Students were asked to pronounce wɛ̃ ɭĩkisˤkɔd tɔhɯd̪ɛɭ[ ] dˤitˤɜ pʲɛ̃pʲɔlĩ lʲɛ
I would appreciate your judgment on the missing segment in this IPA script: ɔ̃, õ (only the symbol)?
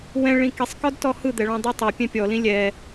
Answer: ɔ̃